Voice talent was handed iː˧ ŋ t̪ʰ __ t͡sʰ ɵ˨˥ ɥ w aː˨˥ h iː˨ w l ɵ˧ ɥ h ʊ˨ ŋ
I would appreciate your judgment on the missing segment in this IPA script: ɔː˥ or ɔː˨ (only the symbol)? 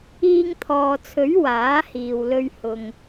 ɔː˨